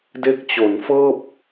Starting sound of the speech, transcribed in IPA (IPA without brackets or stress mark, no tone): d